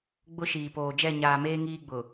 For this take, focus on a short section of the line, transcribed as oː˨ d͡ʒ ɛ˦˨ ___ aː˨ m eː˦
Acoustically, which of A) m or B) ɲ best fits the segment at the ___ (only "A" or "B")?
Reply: B